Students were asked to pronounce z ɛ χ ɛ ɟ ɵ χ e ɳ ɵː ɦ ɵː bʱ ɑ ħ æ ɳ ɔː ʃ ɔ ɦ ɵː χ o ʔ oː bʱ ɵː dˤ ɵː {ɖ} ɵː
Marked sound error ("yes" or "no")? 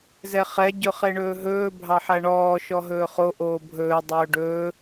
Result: no